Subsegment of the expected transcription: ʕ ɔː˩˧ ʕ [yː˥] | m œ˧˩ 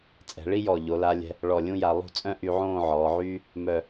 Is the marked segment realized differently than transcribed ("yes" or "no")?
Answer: no